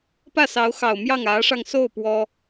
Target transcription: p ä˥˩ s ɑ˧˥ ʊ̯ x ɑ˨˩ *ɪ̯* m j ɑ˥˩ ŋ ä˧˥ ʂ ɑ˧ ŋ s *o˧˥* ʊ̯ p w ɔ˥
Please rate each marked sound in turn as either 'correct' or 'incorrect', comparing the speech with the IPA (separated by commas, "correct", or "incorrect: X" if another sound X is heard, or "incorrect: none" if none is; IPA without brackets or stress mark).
incorrect: ʊ̯, incorrect: o˥˩